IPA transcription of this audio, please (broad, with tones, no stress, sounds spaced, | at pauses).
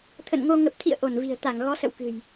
t̪ʰ ə̰˧˨ n ŋ o˧ ŋ ə˨˩ p̚ t̪ʰ ḭ˧˨ ə̯ ʔ o˧˩ n v i̤˨˩ ə̯ t̪ a˧˩ ŋ ɣ ɔ˨˦ s ə̰˧˨ w k ɨ̤˨˩ j